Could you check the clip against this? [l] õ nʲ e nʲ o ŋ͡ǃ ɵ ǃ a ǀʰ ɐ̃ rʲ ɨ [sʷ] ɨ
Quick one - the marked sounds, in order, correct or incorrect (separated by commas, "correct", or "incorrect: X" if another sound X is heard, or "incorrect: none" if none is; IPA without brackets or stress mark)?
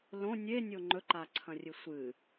correct, correct